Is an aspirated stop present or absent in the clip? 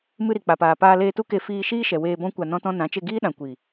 absent